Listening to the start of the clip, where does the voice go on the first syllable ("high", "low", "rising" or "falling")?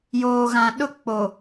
low